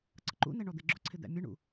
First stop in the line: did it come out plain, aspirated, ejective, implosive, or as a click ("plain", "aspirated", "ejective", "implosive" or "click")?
click